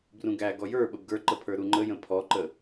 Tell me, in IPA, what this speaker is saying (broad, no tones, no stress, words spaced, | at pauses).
brũɡæ ɡɔjə˞ ɓəbɡə˞ǃəpʰə˞ ɾuŋ͡ǃəjə̃ pʰɔǃə